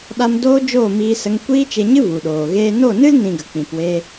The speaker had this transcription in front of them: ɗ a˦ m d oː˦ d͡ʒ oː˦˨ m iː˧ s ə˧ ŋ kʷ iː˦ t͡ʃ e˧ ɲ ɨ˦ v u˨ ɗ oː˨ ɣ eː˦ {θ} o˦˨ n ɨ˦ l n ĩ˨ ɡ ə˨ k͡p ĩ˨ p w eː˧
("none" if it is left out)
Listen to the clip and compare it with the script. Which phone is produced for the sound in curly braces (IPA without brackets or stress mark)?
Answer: n